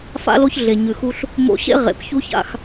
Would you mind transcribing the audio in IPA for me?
f a̰˦ l o˦ ç ɮ e˨ ɲ ʉ˨ x u˧ ɬ | m o̰˧ ɕ ḛ˦ ʁ ḛ˨˦ p ç u˦ ç a̰˧ x

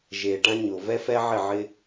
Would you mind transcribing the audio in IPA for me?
ʒ eː˨ ʈ ã˦ ɲ ʊː˨ v ɛ˦ f ɛ˦ ʕ ɪ˦˨ ʕ ɪ˦

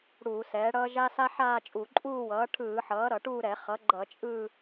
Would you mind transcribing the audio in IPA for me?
ɽ uː˧˩˧ s ɛː˩˥ ɽ ʌː˥ ʒ a˥ s a˥ ħ aː˥˧ t͡ʃʼ u˧˩˧ ǃʼ uː˥˧ w ʌː˩˥ ʈʰ ɯː˧˩˧ ħ ʌː˩˥ ɾ ʌ˧˩˧ ʈ uː˥˧ ɾ ɛ˧˩˧ χ ʌ˩˥ ɡ͡ǃ ʌ˧˩˧ t͡ʃʼ ɯ˥˧

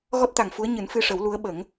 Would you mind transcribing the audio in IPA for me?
ɣ ɔ˦˥ t̚ t̪ a˨˩ ŋ f u˧˥ ə̯ ɲ ɨ˨˩˦ n f ɨ˧ ʂ ə˨˩˦ w l u˧˥ ə̯ ɓ ə˨˩˦ ŋ

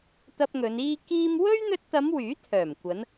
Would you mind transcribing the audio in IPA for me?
t̪ ɐ˧ p̚ ŋ ɵ˨˧ n iː˥ k iː˥ m w ɵ˥ ɥ n̪ ɵ˧ t̚ t̪ ɐ˨˧ m w yː˨˥ t̪ʰ œː˨˩ m kʷ ɐ˨˧ n

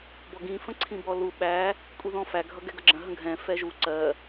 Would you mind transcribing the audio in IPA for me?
b ɔ ɡ ĩ f ə̃ ǀʰ ĩ b ɔ l u ɓ æ | kʷʼ i ð ɔ̃ f æ ɡʱ ʌ ɡ ɛ ɡ ʌ ɡ͡ǁ ə̃ ɦ ə̃ ɡʱ ɛ̃ f ɛ ʒ u ǀ ɜ

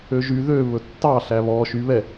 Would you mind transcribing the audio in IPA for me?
ø ʒ y ð ø β ɵ tː ɑ ɬ æ β ɔ ʃ y β ɛ

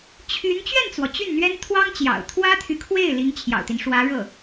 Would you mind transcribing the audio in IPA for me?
t͡ɕʰ y˧˥ n t͡ɕ ɥ ɛ˥˩ n t͡s w ɔ˩ t͡ɕ y˥˩ n n̪ ɥ ɛ˥ n t̪ʰ w ɑ˥ ŋ t͡ɕ j ɑ̰˨˩ ʊ̯ t̪ʰ w ä˥ t̪ʰ y˨ kʰ w e˥˩ ɪ̯ l i˧˥ ŋ t͡ɕʰ j ɑ̰˨˩ ʊ̯ t̪ i˦ n ʂ w ä˧˥ ɻ ɤ˥˩

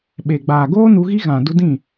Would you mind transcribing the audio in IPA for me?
ɓ e˨ ɡ͡b aː˨ ɡ oː˦ n u˧ ɣ i˦ ɣ ã˨ d u˧ d ĩ˦˨

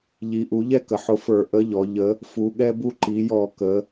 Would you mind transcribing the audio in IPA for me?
ʎ i˩˧ ʔ u˩˧ ʎ ɛ˦ k ə˩˧ ħ ʊ˨˥ f ə˞˧˩˧ ʔ ə˨˥ ʎ ɔ˩˧ ʎ ə˨˥ | f u˩˧ ɠ ɛ˦ b u˦ ǃ i˩˧ j ɔ˧˩˧ k ə˩˧

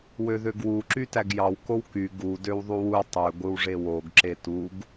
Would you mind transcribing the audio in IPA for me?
w ø ð ø ɡ w u ǁ y t æ ɡ j ɑ w k o w k y ɡ u d ø w ðˤ u w u tˤ ø ɡʷ ɯ w ʐ e w o ɡ ǁ e t u ɡ

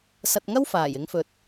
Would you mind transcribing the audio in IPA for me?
s ɐ˧ t̚ ŋ ɐ˥ w f aː˨˩ j ɪ˨˧ ŋ f ɵ˨ t̚

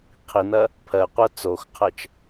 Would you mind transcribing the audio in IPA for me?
qʰ i n ɐ | pʰ ɜ qʷ ɜ t͡s o x qʰ ɜ t͡ʃ

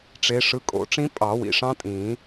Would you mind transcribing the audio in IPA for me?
ʈ͡ʂ e˨˦ ʂ ɯ˨˦ kʼ o̰˨˩˦ ʈ͡ʂ ĩ˦˥ pʼ ɑ˨˩˦ w ḭ˩ ʂ ɑ̃˦˥ tʼ ĩː˨˩˦

